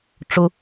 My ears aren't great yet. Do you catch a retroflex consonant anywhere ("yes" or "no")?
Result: yes